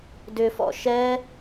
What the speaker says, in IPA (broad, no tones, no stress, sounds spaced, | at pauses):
d ʏ f ɔ̰ ʃ ɛ